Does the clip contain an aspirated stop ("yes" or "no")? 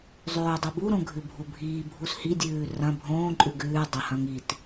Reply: no